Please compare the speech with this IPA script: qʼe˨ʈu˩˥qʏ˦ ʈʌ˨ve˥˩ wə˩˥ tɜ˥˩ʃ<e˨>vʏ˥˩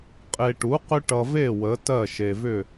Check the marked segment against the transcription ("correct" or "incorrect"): correct